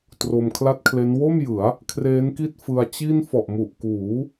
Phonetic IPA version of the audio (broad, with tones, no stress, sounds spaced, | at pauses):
t r o˧ m kʰ l a˥˩ t̚ kʰ l e˦˥ n w o˥˩ m j ɯ˩˦ a̯ | kʰ r eː˦˥ n k i˥˩ t̚ f ɯ˧ a̯ t͡ɕ i˥˩ n f ɔ˨˩ ʔ m u˨˩ ʔ k uː˩˦